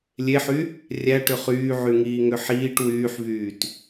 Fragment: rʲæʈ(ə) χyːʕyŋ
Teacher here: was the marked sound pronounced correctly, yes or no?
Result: no